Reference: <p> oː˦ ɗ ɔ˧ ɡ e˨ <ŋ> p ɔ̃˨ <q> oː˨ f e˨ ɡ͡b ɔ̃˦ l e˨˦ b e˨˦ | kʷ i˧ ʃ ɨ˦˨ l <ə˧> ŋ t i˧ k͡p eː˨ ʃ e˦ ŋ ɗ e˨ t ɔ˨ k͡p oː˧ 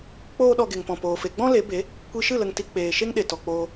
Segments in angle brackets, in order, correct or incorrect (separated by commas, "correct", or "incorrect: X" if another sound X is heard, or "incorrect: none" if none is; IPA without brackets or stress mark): incorrect: k͡p, correct, incorrect: p, correct